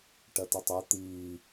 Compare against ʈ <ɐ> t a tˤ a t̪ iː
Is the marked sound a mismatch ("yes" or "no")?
no